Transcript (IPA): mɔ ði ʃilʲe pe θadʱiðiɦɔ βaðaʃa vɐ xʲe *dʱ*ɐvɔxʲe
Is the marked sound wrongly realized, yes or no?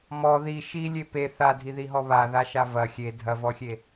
no